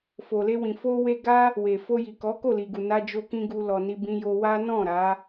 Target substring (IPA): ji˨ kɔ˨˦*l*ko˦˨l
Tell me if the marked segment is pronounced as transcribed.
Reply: no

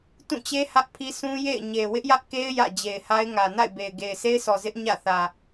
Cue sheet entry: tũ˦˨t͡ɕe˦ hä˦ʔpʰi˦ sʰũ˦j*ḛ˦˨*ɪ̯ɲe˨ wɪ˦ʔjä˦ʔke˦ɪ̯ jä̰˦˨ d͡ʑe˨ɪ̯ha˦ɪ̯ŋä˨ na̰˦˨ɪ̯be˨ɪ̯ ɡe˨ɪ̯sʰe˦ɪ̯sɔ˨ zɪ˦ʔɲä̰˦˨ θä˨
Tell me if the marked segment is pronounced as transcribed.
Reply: yes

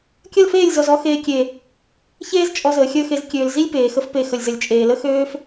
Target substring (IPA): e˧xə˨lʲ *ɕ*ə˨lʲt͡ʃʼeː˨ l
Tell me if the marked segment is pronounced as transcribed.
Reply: no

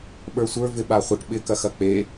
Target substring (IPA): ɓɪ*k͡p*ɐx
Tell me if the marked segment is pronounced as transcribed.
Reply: no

